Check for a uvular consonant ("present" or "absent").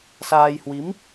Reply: absent